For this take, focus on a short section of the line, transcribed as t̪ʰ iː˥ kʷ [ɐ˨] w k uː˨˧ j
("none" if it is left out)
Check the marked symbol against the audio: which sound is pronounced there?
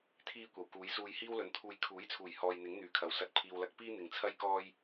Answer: ɐ˨˩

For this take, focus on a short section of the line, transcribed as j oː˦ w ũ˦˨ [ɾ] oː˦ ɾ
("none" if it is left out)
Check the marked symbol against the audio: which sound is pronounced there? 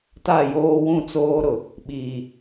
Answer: t͡s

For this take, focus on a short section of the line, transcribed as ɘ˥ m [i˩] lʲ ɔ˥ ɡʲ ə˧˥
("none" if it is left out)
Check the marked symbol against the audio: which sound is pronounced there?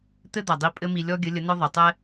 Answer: i˧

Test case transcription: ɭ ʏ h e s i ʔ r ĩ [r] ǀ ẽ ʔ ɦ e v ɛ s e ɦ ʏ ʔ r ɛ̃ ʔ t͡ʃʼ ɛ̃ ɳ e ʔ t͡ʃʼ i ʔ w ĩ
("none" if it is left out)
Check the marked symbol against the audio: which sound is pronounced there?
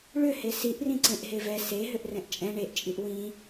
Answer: none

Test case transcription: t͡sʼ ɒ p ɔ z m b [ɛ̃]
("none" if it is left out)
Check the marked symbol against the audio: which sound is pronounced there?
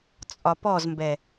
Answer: ɛ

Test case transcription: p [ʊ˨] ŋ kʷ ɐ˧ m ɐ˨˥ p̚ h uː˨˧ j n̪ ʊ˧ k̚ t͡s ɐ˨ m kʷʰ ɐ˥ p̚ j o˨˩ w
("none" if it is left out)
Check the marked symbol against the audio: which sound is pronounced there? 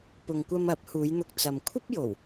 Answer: ʊ˨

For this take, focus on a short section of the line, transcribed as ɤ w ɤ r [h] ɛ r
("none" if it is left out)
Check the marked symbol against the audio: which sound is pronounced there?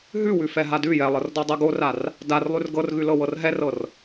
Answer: ɦ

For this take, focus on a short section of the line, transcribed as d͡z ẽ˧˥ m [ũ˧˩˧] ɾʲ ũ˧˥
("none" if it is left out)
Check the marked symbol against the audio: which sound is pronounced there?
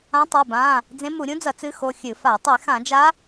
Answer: u˧˩˧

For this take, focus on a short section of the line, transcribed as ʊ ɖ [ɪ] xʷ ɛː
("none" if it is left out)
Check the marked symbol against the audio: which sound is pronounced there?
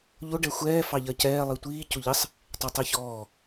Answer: ɛ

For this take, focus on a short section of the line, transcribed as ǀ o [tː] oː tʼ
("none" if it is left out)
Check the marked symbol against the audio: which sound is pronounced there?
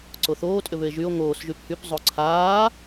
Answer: θ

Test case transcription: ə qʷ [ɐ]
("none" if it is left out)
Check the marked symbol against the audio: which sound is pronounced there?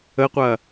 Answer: ɐ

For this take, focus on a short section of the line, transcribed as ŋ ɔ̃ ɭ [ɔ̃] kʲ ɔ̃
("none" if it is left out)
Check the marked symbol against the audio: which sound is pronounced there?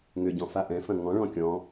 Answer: ɔ̃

